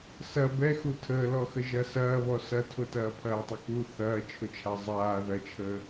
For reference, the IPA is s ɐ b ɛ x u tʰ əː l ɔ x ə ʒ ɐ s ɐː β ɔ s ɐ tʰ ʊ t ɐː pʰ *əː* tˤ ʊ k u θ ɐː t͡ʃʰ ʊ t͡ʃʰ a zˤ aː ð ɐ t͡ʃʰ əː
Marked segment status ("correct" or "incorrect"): incorrect